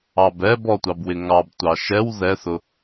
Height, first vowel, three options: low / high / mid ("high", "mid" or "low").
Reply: low